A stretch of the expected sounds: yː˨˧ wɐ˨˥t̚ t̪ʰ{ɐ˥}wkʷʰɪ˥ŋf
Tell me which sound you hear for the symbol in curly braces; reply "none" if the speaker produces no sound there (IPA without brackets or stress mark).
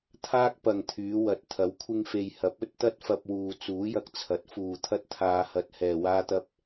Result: ɐ˨˥